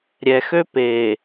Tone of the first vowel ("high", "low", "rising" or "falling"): low